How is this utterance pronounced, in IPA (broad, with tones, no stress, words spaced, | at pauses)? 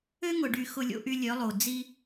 ø˦ŋʊ˨ɖy˨ xʊ˨lʲo̰˨ʔy˨ lʲœ˨˦lˠo˨ d͡zi˦